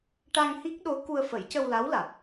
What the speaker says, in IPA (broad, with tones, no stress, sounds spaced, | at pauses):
ʈ a˧ ŋ h i˦˥ k̚ ɗ o˧˥ k u˧ ə̯ f ə˨˩˦ j c ə˧ w l a˧˥ w l a˨˩ t̚